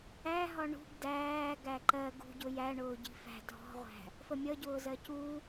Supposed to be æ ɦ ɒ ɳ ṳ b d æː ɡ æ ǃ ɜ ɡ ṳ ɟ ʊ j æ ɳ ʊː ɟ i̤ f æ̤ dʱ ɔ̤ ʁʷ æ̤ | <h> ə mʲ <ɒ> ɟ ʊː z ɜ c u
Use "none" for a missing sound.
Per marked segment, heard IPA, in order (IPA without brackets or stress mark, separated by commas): f, ʌ